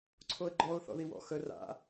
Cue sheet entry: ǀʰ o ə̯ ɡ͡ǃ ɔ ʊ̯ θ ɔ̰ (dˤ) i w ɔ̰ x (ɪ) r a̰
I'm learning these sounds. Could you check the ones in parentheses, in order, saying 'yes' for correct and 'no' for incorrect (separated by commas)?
no, no